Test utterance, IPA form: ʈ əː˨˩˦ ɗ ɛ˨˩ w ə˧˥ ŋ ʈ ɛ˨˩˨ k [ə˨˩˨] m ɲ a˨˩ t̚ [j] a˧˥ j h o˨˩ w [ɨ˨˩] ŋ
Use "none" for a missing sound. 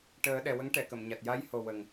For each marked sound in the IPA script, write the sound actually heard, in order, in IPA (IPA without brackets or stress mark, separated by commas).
ə˨˩˨, j, ə˨˩